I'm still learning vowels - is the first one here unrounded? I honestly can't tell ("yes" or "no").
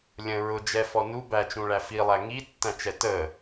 yes